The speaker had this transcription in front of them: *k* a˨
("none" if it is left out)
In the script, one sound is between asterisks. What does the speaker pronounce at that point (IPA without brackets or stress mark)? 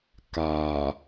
k